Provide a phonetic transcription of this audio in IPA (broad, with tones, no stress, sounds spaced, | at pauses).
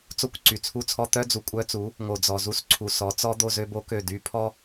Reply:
t͡s o˦ kʷ ǀ y˨ t͡sʰ u˦ t͡sʰ ɔ˦ t̪ œ˦ d͡z u˨ kʷʼ œ˦ t͡s u˨˦ | ŋ o˨ d͡z ɔ˨ z u˦ s ǀʰ u˨ s ɔ˨˦ t͡s ɔ˦ d̪ o˦ z ø˦ b o˦ k ø˦˨ d y˦ pʰ ɔ˦